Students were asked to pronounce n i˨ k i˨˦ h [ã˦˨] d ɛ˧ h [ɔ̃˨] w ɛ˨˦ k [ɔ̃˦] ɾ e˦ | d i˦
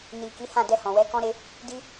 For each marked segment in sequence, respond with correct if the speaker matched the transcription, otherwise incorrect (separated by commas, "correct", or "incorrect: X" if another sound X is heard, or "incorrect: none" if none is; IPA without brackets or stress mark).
correct, correct, correct